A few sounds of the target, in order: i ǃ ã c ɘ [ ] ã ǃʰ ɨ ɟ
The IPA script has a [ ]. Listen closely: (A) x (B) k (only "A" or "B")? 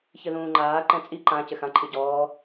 A